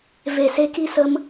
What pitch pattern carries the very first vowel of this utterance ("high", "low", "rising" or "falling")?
low